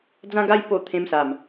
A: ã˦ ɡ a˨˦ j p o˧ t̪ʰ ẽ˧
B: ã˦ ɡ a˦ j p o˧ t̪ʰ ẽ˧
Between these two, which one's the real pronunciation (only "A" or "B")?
B